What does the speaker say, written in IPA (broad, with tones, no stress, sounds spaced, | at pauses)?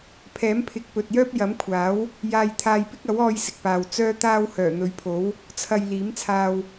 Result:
pʰ ɛː˨˥ m pʰ ɪ˨ k̚ p ɵ˨ t̚ j œː˥ p̚ j ɐ˨˥ m kʷʰ aː˨˥ w | j aː˧ j t̪ʰ aː˧ j p ɪ˥ k̚ ɐ˨˥ w ɔː˧ j s ɪ˨ k̚ p aː˨ w t͡s œː˥ t̪ aː˥ w h œː˨˩ n̪ ɵ˨˧ ɥ pʰ o˨˥ w | t͡sʰ ɐ˨ j l iː˨˥ m t͡sʰ aː˧ w